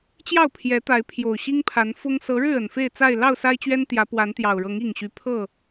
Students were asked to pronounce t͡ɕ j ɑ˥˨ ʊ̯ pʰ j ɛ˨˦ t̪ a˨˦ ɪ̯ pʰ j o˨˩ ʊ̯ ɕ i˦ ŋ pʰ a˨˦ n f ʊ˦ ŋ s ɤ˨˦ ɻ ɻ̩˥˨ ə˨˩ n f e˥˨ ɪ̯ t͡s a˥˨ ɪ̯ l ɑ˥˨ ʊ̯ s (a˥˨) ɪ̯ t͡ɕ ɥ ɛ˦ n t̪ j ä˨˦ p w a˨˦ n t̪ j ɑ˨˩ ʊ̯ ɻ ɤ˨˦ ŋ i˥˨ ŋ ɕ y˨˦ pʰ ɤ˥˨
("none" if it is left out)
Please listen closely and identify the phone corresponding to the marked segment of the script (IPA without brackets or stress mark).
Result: a˦